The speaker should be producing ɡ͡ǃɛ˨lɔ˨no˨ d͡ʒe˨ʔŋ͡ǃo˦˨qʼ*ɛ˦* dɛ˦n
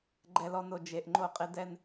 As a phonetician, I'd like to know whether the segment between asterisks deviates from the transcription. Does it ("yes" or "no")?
yes